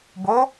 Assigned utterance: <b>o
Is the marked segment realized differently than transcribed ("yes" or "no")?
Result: no